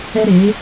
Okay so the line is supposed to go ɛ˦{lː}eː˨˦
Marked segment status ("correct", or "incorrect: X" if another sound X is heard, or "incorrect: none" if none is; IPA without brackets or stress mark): incorrect: ɾ